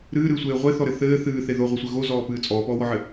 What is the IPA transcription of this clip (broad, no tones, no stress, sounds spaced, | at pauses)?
ɾ ɨː ɾ ɨː sʷ eː ʁʷ e θ ɔ ɾ ɘ θ ɘː θ ɨː θ e ð o ʁʷ ɘ sʷ ɘ ɣ o z ɔː p ɨː t͡sʼ ɔː p ɔː w ɔ ʕ ɘ